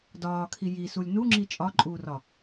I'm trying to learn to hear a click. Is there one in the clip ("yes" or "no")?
yes